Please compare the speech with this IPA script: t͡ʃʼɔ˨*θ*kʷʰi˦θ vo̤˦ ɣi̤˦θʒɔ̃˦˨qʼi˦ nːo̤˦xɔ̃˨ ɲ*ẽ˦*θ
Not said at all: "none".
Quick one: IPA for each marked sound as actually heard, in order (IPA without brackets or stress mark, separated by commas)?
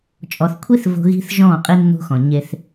θ, e˦